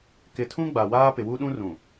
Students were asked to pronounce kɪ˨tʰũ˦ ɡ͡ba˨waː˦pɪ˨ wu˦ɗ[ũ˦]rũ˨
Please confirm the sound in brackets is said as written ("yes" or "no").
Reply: yes